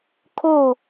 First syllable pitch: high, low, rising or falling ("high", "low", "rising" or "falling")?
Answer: falling